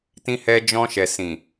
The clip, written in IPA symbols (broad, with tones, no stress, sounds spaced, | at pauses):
t ĩ˧ h ɛ˧ d͡ʒ ɔ̃˧ ʃ ɛ˨ s ĩ˨